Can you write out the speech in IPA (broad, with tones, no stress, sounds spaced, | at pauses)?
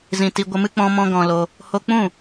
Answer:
z ĩ˨ t i˧ ɡʷ ə˧ m ɨ˦ k͡p ɔ̃˧ m ɔ̃˧ ɡ ɔ̃˧ l o˧ | h o˧ k͡p ũ˦˨